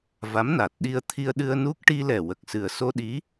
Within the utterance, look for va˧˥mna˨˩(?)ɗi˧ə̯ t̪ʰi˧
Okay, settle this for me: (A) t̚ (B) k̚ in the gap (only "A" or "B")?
A